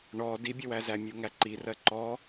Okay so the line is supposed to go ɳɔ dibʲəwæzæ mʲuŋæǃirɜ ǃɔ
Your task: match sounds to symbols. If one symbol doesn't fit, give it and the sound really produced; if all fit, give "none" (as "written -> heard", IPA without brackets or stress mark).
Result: none